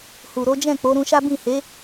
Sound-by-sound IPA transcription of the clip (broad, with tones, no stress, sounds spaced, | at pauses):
h u˨ ɾ o˨˦ d͡ʒ ɛ̃˦˨ k͡p o˨˦ ɾ ũ˧ ʃ a˦ b ĩ˦˨ h e˨˦